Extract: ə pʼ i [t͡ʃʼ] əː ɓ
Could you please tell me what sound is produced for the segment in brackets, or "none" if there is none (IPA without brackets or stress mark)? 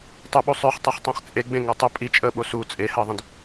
t͡ʃʼ